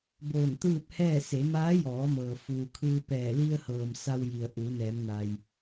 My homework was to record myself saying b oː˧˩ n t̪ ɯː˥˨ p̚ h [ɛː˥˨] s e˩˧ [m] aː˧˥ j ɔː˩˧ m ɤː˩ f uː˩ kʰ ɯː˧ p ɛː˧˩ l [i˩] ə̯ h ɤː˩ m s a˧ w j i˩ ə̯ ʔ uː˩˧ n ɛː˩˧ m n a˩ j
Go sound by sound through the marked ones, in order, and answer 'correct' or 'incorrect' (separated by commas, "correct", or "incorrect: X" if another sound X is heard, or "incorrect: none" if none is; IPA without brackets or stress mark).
correct, correct, incorrect: i˧